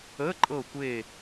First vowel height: mid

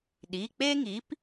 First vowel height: high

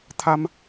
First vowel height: low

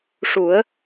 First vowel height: high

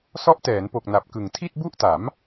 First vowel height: mid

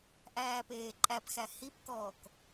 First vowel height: low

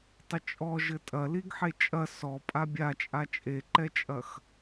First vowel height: mid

